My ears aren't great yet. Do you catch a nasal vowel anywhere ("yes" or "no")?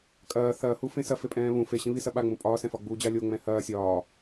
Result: yes